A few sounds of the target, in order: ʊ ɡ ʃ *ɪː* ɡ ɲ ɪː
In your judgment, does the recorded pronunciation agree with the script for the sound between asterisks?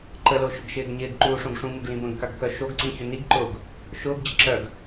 yes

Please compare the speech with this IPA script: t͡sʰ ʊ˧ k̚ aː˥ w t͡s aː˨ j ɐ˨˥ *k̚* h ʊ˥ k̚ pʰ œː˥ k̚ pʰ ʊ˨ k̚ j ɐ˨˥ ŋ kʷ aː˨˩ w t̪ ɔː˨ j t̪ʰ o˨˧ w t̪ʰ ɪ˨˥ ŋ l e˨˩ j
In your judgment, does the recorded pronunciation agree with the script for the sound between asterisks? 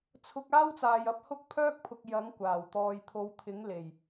no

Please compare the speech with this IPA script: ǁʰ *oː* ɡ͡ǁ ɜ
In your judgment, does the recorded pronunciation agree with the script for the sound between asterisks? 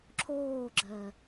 yes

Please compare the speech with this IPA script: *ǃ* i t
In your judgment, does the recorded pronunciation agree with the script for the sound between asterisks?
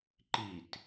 yes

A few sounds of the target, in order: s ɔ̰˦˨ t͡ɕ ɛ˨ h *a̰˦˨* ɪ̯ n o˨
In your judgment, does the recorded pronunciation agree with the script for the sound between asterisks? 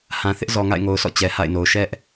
yes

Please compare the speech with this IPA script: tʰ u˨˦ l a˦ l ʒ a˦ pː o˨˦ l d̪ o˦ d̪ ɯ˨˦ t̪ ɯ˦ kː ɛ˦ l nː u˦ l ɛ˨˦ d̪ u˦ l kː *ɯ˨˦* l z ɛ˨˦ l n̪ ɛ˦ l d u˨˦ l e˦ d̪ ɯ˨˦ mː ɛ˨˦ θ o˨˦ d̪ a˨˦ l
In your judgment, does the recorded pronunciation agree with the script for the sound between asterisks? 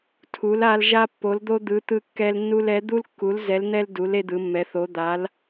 no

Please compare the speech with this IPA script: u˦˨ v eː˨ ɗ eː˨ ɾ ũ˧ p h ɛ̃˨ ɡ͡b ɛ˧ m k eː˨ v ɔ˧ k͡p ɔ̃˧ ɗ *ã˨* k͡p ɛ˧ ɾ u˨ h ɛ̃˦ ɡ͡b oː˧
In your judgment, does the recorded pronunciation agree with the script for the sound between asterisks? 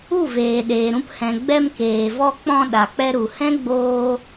no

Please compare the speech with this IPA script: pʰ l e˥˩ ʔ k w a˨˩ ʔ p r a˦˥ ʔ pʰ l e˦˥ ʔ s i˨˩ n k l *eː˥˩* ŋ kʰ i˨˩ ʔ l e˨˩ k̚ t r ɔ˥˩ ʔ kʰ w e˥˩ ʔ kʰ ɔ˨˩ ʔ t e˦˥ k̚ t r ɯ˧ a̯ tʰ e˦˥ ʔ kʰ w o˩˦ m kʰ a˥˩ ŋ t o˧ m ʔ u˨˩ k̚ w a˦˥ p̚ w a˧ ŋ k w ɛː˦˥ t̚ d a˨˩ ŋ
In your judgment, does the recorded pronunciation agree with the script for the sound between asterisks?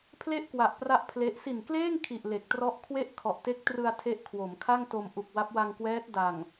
yes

